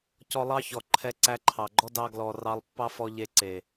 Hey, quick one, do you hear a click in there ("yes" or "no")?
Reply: yes